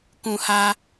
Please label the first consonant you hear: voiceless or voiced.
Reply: voiceless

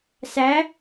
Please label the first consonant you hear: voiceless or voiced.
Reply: voiceless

